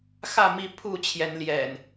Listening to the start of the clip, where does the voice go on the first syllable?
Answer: falling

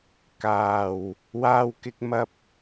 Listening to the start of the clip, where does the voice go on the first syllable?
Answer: low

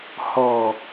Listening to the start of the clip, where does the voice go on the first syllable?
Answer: low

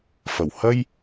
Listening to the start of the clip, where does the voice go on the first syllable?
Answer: low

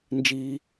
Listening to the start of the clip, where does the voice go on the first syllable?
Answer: high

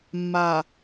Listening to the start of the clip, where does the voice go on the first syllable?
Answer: low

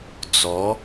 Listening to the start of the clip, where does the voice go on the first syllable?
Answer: rising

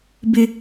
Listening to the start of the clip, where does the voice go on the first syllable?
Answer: high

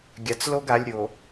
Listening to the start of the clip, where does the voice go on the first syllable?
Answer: low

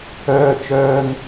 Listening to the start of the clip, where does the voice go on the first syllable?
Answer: high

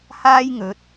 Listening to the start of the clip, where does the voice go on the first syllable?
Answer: high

